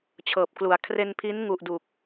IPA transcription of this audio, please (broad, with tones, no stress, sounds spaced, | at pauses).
t͡ɕʰ ɤː˨˩ p̚ k l u˨˩ a̯ kʰ r e˧ n pʰ i˦˥ n ŋ u˨˩ ʔ d u˨˩ k̚